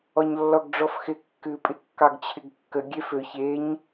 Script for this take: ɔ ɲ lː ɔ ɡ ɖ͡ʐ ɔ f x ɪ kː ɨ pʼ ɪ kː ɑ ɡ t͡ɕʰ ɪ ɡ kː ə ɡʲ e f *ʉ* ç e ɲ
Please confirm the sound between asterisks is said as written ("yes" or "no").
no